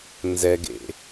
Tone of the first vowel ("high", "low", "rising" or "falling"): low